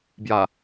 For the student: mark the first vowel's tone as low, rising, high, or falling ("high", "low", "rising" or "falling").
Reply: low